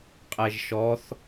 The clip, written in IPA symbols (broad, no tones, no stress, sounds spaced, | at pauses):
qʼ ɛ ʒ ʃ ɔ θ